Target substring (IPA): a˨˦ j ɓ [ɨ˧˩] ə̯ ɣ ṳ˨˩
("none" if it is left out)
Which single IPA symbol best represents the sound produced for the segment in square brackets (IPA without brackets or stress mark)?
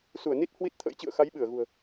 ɨ˧˩